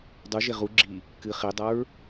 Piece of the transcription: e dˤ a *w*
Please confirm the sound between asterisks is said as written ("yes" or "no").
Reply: no